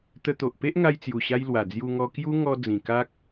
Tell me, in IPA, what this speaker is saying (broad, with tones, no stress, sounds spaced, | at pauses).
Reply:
t̪ ə˧ t̪ o˨ ʔ p e˦ ʔ ŋ a˧ j t͡s j u˨˩ ɕ a˧ j l w a˨˩ d͡z j u˧ ŋ ɔ˧ k j u˦ ŋ ɔ˧ d͡z ĩ˨˩ k a˦ k̚